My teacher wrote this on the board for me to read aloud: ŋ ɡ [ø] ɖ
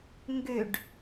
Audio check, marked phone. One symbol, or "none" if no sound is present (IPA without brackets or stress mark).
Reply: ø